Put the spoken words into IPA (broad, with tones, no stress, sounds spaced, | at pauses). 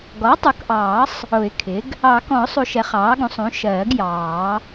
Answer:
ɡ ɔ˩˥ tˤ u˩˥ k ʔ ɑː˨˩˦ sˤ | ʊ˨˩˦ ɪ̯ kʰ ɪ˩˥ ɡ | ɑ˨˩˦ k ɔ̃˨˩˦ ʊ̯ sˤ u˨˩˦ ʃ ɛ˩˥ χ ɑː˩˥ ɡ ũ˩˥ sˤ ũ˩˥ ʃ ɜː˨˩˦ ɡ j ɑː˨˩˦